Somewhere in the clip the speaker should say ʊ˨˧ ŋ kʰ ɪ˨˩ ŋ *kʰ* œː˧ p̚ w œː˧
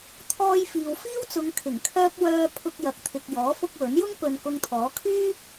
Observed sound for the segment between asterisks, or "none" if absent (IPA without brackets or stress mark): kʰ